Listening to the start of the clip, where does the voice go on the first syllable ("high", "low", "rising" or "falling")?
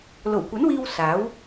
low